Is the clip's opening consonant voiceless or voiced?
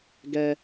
voiced